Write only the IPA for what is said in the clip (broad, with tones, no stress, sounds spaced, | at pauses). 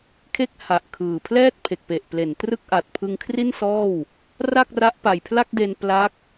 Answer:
kʰ e˦˥ k̚ h a˨˩ ʔ kʰ ɯː˨˩ pʰ l ɛː˥˩ t̚ pʰ e˨˩ k̚ p e˨˩ ʔ p l e˩˦ n t r ɯ˥˩ k̚ ʔ a˨˩ t̚ pʰ ɯ˧ ŋ kʰ r i˥˩ n s ɔː˥˩ w | r a˥˩ k̚ r a˦˥ ʔ p a˨˩ j pʰ l a˥˩ k̚ d e˧ n p l a˦˥ k̚